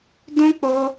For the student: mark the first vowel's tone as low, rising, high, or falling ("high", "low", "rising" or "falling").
high